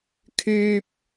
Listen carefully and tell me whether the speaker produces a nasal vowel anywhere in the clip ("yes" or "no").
no